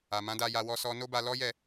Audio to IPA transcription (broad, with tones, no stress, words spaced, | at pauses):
a˨mã˨˦da˧ja˧ wɔ˧sɔ˧ no˦ba˧lɔ˦jɛ˦˨